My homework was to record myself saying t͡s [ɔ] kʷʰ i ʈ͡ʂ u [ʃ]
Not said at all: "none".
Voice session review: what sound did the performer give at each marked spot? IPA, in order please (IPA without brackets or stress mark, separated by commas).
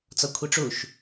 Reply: ɔ, ʃ